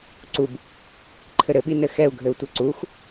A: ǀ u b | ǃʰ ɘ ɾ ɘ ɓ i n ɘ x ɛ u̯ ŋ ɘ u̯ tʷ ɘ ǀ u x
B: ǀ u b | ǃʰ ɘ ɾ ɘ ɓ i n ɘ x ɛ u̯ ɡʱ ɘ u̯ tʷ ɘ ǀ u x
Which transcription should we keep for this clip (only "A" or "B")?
B